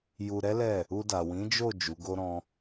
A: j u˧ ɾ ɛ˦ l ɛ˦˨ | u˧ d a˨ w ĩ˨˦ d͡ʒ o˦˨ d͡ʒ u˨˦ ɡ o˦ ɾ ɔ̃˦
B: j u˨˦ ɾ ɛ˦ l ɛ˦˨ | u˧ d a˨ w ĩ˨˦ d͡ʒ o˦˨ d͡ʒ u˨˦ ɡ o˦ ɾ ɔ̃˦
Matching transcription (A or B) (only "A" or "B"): A